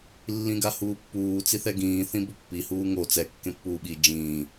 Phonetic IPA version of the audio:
lː ĩ ɡ a h uː pː uː t͡s i θ ɛ ɡ ĩː θ ĩ b o pː i h uː ŋ o t͡s ɛ kː ẽ pː uː ɓ i d͡ʒ ĩː

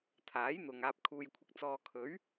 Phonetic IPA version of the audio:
t̪ʰ aː˨˥ j n̪ ʊ˨ ŋ aː˧ p̚ kʰ uː˧ j kʷʰ ɪ˧ k̚ t͡s ɔː˧ kʰ ɵ˨˥ ɥ

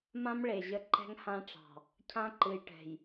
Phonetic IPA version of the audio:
m ã˦ m ɭ e˨ ʑ ə˦ ǃ ɛ̤˦ ŋ h ã˦ ʈ͡ʂ ɑ̤˨ | cʰ ã˦ ǃ ɨ˨ j ʈ ɛ̤˨ j

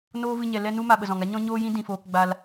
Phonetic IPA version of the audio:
n oː˦ v ɨ˧ ɲ ɛ˨ l ɛ˧ n u˧ m a˧ ɓ ə˨ z ɔ̃˨ ŋ a˦ ɲ ɔ̃˦ ɲ oː˦ j ĩ˦ d ĩ˨ f oː˧ k ɡ͡b a˧ l

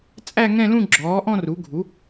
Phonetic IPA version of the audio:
t͡sʼ æ˥˧ ŋ ɛ̃˥˧ l ũ˥˧ ɡ͡ǁ ɔː˩˥ ʔ ɔ̃˥˧ r u˩˥ ɡʱ u˩˥

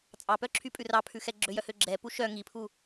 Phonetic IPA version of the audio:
t͡sʼ ɑ p œ ǁʰ y pʼ ʉ r ɑ pʰ ʉ x ɛ ɡ͡ǁ ø j œ h ø ɡ͡ǁ ɛ p u ʃ œ ŋ i pʰ u

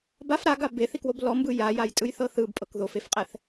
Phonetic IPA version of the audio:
b a f ɾ a ɡ a b e θ i k w o b l ɔ m b ɯ j a j a j tʼ ɯ j θ ɤ θ ɯ b pʼ ɤ k ð o f e f qʼ ɛ θ

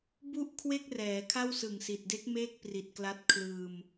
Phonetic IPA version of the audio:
b u˥˩ ʔ kʰ w e˥˩ k̚ r ɛː˩˦ kʰ a˥˩ w s ɯ˨˩ ŋ s i˨˩ t̚ d e˦˥ k̚ m eː˥˩ k̚ p r i˨˩ t̚ k l a˦˥ t̚ kʰ l ɯː˧ m

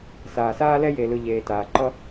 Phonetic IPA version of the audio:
s aː˨ s aː˦ l ɛ˦ j e˨ l ɯ˨ ʎ eː˨ t aː˨ ǃ ʌ˦

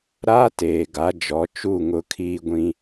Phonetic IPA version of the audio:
ɾ aː˦ t eː˨ ɡ a˨˦ d͡ʒ ɔ˨˦ t͡ʃ u˦˨ ŋ ʊ˦ kʰ iː˦ ɡʷ ĩ˦

